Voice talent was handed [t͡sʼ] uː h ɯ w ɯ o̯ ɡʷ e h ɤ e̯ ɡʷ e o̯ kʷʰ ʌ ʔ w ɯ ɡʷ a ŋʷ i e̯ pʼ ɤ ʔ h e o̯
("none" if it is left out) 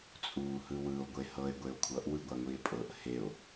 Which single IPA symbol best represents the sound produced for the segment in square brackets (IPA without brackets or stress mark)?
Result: t͡sʼ